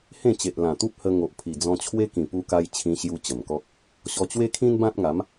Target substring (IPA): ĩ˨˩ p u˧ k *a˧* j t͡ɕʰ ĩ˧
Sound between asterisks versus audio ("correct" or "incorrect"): correct